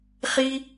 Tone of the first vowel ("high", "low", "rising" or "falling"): high